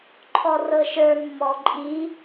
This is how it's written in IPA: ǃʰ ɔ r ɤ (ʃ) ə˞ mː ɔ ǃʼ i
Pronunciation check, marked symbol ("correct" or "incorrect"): correct